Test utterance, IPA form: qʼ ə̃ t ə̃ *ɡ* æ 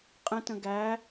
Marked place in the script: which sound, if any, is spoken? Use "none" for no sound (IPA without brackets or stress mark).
ɡ